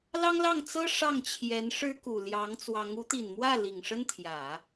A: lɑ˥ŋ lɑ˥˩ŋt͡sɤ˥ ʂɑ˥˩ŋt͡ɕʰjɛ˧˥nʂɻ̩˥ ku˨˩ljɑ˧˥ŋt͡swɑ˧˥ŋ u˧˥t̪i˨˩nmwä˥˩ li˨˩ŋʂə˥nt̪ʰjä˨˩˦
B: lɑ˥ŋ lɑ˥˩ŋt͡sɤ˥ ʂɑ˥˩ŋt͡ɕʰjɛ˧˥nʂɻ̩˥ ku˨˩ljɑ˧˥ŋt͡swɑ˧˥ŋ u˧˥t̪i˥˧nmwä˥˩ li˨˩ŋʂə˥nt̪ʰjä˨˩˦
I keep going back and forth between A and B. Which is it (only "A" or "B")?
A